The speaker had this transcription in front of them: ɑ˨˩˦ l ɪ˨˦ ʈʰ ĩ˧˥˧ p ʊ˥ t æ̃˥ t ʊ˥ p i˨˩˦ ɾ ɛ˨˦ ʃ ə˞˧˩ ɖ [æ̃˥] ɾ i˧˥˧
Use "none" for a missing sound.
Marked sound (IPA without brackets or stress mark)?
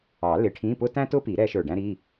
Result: æ̃˥